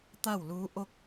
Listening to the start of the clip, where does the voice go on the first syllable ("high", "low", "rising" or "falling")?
falling